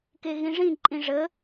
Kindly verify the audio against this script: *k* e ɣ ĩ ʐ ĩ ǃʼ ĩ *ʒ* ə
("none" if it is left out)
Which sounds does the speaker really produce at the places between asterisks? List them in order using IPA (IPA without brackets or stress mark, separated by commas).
k, ʐ